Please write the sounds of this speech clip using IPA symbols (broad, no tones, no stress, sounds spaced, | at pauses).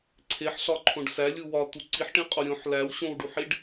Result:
ǀʰ e ħ ɬ ɒ ǃʰ õ ɖ s æ lʲ u w ɒ t̪ u ǀ i ħ ʈ ĩ qʼ o ɾʲ õ ħ l æ w ɕ õ w ɖ u ħ i ɖ